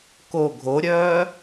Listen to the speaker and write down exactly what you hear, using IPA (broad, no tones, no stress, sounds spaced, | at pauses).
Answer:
k o ɡʱ o ɾʲ œː